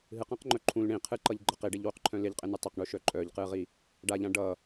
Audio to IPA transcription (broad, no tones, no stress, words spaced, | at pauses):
ɦɨqãqŋ͡ǃœ ǃʰũl ɳĩ qʰɨǃʌʎ ɡ͡ǃʌq iɖeʎwuqǃʰœ̃ lɪʎqʼɪnɨ tˤɪqɳuʃœ ǃʼœʎqɨʁi | ɖaʎã ɖʌ